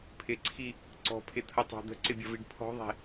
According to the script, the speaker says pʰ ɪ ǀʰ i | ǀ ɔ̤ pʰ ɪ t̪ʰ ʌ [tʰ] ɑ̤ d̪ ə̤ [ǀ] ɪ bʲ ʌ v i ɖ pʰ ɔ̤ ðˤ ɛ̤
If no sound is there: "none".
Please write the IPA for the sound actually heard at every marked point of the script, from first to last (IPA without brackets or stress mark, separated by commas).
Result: tˤ, ǀ